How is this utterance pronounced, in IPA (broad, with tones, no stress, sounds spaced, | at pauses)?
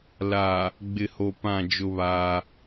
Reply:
l aː˨ | ɡ͡b ɪ˨ h o˨ p ã˦˨ d͡ʒ ʊ˦ β aː˦